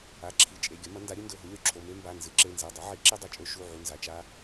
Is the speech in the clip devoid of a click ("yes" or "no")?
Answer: no